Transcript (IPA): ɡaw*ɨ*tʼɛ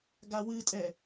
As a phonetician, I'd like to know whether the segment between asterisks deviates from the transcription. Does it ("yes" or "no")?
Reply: no